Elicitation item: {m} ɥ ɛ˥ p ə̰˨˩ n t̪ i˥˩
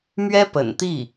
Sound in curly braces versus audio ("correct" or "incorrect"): correct